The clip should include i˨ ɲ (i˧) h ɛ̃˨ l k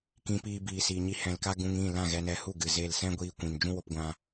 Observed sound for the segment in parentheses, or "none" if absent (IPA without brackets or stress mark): i˧